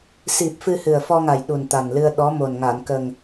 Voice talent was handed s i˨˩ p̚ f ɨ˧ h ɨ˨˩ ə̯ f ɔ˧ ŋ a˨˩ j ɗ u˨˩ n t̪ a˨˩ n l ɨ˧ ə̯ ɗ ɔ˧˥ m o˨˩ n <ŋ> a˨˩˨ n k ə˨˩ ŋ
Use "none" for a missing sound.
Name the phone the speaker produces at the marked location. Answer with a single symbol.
ŋ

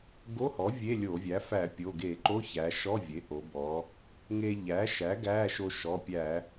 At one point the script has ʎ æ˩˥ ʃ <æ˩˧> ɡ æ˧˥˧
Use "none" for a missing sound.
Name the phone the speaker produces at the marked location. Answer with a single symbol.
æ˩˥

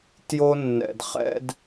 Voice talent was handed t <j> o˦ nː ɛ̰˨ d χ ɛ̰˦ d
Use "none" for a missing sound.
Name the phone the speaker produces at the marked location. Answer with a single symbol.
j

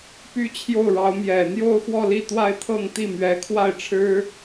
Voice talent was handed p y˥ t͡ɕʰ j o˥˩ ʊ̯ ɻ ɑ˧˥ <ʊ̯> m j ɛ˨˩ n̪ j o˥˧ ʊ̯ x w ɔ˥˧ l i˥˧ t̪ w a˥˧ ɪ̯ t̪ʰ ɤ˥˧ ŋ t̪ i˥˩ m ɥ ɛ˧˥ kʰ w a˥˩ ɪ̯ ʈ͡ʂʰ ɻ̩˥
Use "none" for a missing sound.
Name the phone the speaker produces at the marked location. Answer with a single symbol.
ʊ̯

